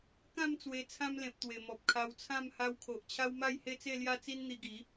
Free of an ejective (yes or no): yes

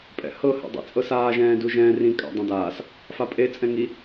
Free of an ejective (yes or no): no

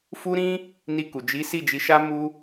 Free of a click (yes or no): yes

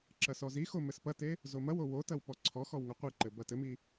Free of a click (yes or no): no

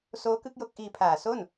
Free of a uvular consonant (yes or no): yes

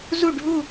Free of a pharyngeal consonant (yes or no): yes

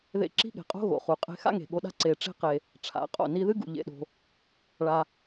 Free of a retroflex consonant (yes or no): no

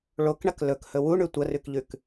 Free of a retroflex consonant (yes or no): no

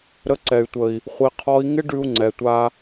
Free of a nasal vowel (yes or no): yes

